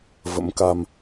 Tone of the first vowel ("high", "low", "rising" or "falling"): rising